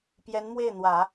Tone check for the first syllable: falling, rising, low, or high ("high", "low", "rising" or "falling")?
rising